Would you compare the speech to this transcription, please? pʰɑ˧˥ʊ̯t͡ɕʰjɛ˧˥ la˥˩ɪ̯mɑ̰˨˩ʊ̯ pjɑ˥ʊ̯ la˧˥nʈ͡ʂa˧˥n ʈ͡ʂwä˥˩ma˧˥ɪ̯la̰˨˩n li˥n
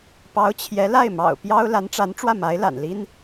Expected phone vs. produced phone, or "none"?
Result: pʰ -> p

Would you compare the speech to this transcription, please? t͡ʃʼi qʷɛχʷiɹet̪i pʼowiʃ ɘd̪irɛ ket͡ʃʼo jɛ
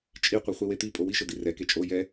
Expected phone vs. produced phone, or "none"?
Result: ɹ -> w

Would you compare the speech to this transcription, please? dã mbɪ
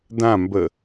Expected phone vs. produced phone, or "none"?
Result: ɪ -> ə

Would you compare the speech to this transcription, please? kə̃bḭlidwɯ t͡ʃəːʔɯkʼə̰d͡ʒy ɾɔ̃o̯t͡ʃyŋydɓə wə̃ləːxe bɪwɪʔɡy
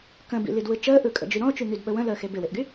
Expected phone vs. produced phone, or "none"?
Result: none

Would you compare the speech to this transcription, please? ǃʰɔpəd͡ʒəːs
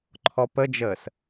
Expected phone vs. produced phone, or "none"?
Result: none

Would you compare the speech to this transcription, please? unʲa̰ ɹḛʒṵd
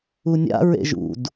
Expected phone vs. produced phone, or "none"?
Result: none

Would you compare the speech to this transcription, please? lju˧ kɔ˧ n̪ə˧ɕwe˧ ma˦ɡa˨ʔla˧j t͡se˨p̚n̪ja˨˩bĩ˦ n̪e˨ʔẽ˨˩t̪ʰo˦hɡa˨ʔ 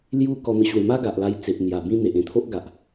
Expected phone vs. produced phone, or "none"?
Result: h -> ʔ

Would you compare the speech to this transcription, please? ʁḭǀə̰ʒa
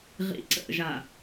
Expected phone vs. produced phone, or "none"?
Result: none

